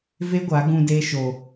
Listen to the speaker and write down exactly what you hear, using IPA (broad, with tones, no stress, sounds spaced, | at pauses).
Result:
v e˦ ɡʷ a˨˦ ɡ ũ˧ d eː˦ ʃ o˧